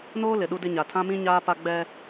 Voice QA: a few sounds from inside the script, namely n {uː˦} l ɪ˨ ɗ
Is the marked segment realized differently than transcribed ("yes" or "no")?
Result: yes